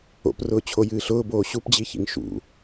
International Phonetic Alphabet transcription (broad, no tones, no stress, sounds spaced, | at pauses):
o̰ p r ʊː t͡ɕʰ o j ɨː ɬ ʊː b oː ɕ u p d͡ʑ i ç ḭ ŋ ʃ ṵ